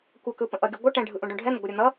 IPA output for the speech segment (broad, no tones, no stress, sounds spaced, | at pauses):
kʷ ʌ k ɯ p ə̃ ʔ ʌ ɡʲ ʌ ɡʷ ʌ ʈ ɛ̃ ɖʱ ɯ ʔ ũ ɖ ũ ɖʱ ɛ n̪ ə ɡʷ ʌ ɾʲ ʌ n̪ ʌ